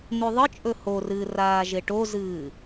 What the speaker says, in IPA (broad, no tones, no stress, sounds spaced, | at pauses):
n̪ ʉ ðˤ ɨ t͡ʃʼ ɵ h o r ɨː r aː ʒ e ʈ o z ɨː